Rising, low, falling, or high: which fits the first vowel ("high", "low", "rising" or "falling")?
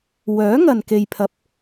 rising